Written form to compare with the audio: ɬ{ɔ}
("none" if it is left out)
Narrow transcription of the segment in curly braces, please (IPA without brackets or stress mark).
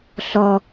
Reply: ɔ